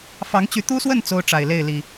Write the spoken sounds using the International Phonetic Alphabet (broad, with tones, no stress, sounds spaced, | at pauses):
f ɑ˨˦ ŋ t͡ɕ y˨˦ t̪ u˦ s w ə˥˨ n t͡s o˦ ʊ̯ ʈ͡ʂ a˨˩ ɪ̯ l e˥˨ ɪ̯ l i˨˩